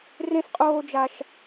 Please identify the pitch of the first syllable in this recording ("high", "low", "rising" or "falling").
high